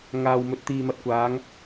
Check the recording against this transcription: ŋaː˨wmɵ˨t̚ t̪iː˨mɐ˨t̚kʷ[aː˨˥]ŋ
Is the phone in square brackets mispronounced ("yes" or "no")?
yes